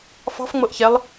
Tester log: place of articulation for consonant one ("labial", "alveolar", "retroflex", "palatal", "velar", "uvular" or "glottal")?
labial